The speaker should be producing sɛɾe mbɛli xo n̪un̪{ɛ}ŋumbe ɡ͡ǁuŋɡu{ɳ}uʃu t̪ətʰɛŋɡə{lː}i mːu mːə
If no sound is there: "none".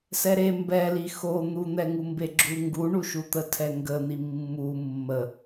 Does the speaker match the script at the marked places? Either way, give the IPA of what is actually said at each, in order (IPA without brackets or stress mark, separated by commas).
ɛ, ɳ, n̪